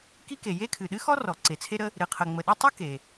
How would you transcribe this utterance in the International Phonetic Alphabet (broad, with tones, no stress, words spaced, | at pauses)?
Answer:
ki˥ke˩ je˥kʰɨ˩ ɗɨ˥xɔ˥rɔ˩ ǀe˩t͡sʰe˥ɾə˥ | ɾɨ˩qʰə˩ŋ͡mə˩ɗu˥ tˤɨ˥ ke˩